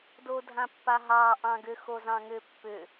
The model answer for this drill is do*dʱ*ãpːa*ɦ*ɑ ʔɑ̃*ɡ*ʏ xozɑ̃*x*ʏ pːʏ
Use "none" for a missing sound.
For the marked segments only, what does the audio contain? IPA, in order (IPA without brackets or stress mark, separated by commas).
dʱ, ɦ, ɡ, ŋ